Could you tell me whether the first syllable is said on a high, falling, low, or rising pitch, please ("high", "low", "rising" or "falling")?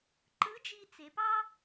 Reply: rising